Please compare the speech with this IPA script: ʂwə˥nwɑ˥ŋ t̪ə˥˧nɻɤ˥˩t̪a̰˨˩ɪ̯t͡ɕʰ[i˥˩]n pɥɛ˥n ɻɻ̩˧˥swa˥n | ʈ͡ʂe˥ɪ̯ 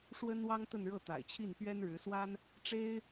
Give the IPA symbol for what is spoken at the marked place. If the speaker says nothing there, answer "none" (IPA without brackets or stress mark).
i˥˩